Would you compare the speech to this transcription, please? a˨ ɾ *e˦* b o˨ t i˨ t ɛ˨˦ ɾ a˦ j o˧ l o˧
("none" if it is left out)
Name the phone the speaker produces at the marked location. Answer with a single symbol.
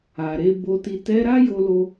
e˧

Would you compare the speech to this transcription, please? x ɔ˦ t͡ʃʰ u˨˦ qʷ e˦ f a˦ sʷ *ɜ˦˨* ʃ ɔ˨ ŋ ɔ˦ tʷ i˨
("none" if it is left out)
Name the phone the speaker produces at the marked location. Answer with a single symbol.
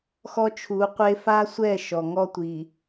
ɛ˦˨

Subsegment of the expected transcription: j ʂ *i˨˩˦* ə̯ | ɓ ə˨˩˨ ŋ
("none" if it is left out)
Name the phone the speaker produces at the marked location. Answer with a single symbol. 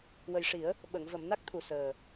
i˨˩˦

